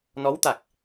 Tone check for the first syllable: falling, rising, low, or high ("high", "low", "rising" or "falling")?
rising